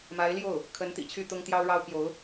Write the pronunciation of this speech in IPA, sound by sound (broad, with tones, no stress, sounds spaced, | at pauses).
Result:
m a˧˥ ɪ̯ l j o˥˩ ʊ̯ | kʰ ə˧˥ n t̪ ḭ˨˩ t͡ɕʰ y˥˩ t̪ ʊ˥ ŋ t̪ j ɑ˥ ʊ̯ ɻ ɑ˥ ʊ̯ p j o˧˥ ʊ̯